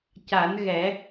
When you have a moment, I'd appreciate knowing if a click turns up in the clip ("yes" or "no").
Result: no